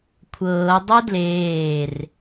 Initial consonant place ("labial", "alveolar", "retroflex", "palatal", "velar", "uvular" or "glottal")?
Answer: velar